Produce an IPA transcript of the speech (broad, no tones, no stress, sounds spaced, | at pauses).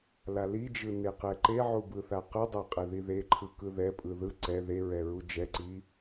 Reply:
l a l i d͡ʒ ɯ n e q ɛ ǃ e ʕ u b ɯ θ a q ɯ dˤ ɛ qʼ ɛ ð i ð e ǃʰ ɯ k ɯ ð ɛ pʼ ɯ ð ɯ ǀ ɛ ð e ɹ ɛ ɹ u d͡ʒ ɛ ǀ i